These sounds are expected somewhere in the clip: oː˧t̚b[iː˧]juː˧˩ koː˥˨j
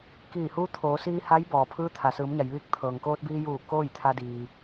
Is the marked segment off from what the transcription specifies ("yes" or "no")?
no